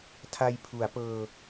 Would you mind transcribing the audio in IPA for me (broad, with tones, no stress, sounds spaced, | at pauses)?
tʰ a˧ j pʰ u˩˦ a̯ p ɤː˧